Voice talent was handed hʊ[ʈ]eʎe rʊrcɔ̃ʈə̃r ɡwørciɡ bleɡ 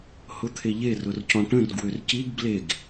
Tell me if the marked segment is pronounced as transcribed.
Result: no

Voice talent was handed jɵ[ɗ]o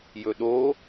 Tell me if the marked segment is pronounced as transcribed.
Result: yes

